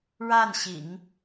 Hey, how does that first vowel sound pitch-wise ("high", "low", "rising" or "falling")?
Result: falling